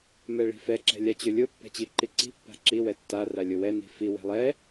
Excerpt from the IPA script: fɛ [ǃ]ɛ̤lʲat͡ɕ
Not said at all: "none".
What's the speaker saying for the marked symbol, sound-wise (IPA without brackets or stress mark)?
ǁ